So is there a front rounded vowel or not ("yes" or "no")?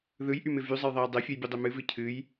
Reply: yes